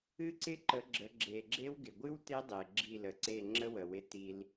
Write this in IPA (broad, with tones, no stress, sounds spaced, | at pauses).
ɨ˦ ǀ ɪ˦ ǃ ə˨˦ ɡ͡ǁ ə˨˦ ɡ͡ǁ e˨ ɡ͡ǁ e˦ w ɡ ɪ˨ ɡʷ ɨ˦ w t e˦ dˤ e˨ ɡ͡ǁ i˦˨ l ə˨ ǀ e˦˨ ŋ͡ǁ ə˦ w ə˨ w ɪ˧ t i˧ l